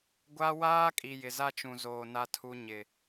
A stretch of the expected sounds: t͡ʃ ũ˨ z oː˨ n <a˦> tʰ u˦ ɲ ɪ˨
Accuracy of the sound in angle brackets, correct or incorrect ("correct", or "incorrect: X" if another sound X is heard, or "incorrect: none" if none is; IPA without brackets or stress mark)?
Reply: correct